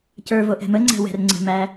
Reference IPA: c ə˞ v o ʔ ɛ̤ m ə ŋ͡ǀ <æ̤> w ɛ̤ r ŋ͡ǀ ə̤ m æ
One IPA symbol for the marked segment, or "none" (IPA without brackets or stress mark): æ̤